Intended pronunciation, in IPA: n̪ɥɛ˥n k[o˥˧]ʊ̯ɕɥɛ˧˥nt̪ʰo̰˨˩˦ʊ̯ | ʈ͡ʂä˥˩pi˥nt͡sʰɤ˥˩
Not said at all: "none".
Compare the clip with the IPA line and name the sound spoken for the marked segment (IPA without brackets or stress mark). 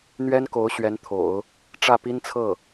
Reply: o˧˥